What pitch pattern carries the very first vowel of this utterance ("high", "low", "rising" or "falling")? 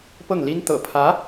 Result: falling